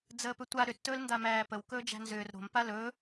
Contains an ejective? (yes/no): no